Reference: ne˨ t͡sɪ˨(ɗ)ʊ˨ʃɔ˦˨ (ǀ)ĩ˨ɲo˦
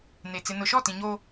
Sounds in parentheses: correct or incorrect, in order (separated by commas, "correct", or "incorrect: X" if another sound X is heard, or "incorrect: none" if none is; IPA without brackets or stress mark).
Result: incorrect: n, incorrect: t